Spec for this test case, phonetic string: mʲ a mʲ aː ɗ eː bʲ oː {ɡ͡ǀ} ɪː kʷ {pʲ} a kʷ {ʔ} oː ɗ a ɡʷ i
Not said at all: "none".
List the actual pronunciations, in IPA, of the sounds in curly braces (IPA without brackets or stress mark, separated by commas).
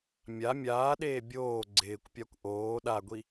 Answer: ɡ͡ǀ, pʲ, ʔ